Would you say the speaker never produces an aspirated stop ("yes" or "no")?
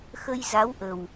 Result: yes